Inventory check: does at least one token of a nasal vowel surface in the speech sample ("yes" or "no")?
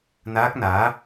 no